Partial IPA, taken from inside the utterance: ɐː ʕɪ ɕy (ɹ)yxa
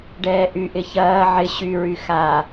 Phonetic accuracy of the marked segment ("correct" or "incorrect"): correct